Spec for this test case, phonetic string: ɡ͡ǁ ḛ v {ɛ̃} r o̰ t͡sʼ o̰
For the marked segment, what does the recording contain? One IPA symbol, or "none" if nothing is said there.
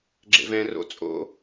ɛ̃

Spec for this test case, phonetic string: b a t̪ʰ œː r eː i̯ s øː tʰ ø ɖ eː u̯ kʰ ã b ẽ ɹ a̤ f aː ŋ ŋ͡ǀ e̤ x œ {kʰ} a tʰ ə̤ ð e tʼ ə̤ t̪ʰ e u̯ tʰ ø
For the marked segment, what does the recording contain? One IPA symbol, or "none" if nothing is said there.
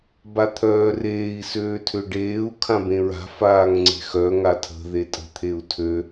ŋ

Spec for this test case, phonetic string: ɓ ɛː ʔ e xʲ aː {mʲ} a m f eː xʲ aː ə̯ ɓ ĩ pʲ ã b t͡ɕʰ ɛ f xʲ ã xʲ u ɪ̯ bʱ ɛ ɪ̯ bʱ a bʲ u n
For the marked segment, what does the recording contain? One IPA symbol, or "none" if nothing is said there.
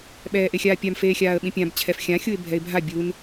pʲ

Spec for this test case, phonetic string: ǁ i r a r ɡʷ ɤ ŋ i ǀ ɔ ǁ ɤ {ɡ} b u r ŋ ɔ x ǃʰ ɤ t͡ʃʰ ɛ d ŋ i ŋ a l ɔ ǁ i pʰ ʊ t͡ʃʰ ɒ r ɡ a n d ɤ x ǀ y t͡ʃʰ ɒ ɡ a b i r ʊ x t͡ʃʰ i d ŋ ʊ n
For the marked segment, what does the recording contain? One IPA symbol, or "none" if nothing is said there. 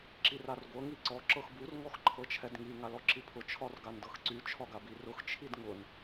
x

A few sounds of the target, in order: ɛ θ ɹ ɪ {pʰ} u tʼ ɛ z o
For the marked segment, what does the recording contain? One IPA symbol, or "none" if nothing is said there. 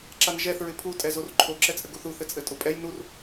pʰ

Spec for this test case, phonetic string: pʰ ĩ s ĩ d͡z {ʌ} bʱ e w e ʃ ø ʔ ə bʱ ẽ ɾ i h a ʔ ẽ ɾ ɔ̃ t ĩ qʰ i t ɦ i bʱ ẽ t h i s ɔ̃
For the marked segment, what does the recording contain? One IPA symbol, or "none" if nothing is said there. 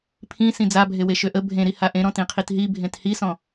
a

